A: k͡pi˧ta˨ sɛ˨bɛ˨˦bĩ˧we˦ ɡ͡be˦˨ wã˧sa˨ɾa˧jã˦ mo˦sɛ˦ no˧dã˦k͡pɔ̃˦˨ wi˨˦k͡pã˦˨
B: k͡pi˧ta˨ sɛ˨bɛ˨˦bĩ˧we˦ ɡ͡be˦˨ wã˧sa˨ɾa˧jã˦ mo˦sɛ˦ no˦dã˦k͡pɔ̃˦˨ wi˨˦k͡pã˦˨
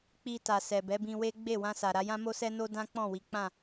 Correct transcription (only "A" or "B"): B